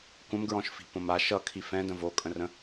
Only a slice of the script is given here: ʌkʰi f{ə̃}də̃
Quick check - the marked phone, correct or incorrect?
incorrect